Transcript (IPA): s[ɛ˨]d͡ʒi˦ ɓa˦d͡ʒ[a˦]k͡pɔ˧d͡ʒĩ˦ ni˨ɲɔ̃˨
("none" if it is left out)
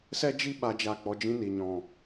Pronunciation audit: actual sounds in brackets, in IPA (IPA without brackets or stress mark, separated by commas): ɛ˦, a˦˨